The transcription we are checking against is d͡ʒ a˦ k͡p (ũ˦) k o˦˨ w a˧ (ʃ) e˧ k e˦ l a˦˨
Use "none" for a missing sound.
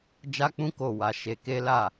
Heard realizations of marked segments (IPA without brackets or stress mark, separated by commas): ũ˦, ʃ